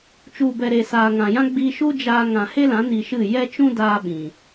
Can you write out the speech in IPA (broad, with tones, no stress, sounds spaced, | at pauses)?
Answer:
t͡ʃ u˨ b ɛ˨ ɾ e˨ s aː˨ ŋ ã˨ j ã˦ ɡ͡b i˧ ʃ u˦ d͡ʒ aː˧ ŋ ã˨ h e˦ l ã˨˦ n i˧ ʃ ɨ˦˨ j ɛ˦ t͡ʃ ũ˦ d aː˧ ɓ ĩ˨